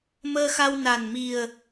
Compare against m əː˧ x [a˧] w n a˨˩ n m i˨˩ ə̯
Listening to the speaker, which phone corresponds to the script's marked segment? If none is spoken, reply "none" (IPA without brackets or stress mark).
a˧